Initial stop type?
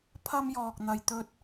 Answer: aspirated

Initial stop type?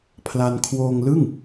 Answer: aspirated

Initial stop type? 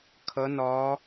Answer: aspirated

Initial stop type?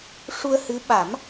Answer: implosive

